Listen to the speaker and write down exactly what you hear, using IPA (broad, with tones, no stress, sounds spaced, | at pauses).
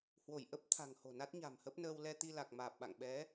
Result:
h w o˧˩ j ʔ ə˦˥ p̚ t̪ʰ a̤˨˩ ŋ h o̤˨˩ n a˦˥ t̚ ɲ a̤˨˩ m h ə˦˥ p̚ n əː˧ w l ɛ˧ t̪ i˧ l a˨˩ k̚ m aː˨˩ p̚ ɓ a̰˧˨ ŋ ɓ ɛ˨˦